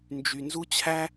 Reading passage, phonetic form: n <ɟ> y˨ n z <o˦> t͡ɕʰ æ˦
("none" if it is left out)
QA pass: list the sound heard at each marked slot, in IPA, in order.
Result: d͡ʒ, u˦

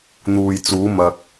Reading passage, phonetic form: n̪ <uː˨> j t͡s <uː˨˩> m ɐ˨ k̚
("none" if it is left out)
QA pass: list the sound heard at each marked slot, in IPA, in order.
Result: uː˨, uː˨˧

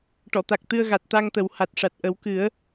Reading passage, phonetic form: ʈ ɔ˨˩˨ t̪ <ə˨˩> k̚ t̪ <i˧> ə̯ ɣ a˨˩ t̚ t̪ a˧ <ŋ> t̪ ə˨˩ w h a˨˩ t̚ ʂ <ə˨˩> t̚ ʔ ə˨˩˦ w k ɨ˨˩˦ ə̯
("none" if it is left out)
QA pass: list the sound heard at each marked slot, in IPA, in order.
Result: a˨˩, ɨ˧, ŋ, a˨˩

